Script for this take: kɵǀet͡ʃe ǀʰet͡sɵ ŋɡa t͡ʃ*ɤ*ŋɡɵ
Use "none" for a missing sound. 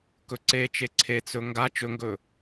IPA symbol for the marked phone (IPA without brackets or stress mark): ɵ